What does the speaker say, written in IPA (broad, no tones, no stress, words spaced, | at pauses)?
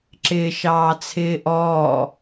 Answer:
ǁɪːʃɑːt͡sʰɪːʔɔː